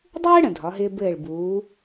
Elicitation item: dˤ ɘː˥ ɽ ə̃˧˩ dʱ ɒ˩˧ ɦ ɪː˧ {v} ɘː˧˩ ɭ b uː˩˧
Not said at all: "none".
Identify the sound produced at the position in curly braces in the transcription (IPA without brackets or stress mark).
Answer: b